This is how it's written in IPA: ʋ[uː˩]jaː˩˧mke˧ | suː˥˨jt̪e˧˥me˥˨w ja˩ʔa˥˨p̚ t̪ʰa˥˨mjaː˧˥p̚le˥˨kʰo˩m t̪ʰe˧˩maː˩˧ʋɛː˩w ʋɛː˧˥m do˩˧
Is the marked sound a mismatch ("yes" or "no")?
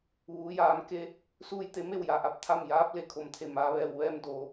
yes